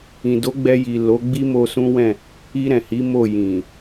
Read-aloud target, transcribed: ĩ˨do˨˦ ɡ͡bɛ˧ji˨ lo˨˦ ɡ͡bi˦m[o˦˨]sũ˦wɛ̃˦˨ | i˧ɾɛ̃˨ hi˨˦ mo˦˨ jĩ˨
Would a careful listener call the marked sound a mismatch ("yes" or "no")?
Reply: yes